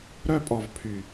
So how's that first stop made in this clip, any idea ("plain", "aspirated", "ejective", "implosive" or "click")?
ejective